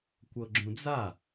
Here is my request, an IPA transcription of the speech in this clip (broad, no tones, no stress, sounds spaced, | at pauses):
kʷ ɤ ɡ͡ǁ ũ d͡z a